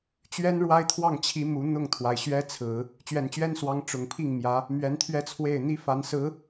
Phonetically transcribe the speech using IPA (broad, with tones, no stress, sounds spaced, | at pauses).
t͡ɕ ɥ ɛ˥ n ɻ w a˥ ɪ̯ t̪ʰ w ɑ˥˩ ŋ t͡ɕʰ i˧˥ m u˧˥ n̪ ʊ˥˩ ŋ t̪ʰ w a˩ ɪ̯ ɕ ɥ ɛ˥ t͡sʰ ɹ̩˨˩˦ | t͡ɕ ɥ ɛ˨˩ n t͡ɕ ɥ ɛ˥ n s w ɑ˧˥ ŋ ʈ͡ʂ ʊ˨˩ ŋ pʰ i˥˩ ŋ m j ä˧˥ | m ɥ ɛ˧˥ n t̪ʰ ɥ ɛ˥˧ t͡sʰ w e˥˩ ɪ̯ n̪ i˥ f a˧˥ n s ɹ̩˧˥